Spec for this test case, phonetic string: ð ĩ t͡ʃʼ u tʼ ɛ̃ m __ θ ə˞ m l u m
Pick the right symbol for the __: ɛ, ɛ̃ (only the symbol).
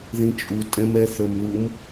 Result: ɛ